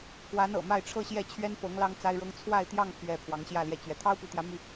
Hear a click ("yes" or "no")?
no